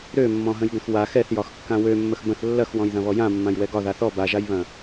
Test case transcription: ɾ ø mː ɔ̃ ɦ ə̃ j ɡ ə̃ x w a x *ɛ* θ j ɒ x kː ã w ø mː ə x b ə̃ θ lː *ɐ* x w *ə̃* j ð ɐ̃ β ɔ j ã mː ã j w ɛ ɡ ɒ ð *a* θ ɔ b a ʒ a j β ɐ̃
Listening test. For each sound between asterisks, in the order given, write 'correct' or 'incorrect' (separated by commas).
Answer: correct, correct, incorrect, correct